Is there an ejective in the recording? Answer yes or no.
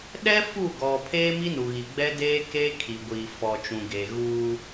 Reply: no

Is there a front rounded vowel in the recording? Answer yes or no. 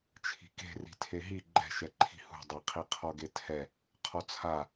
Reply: no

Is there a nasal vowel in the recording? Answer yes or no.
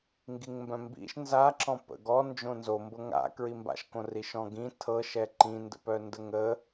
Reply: yes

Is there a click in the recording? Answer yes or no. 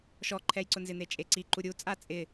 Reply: yes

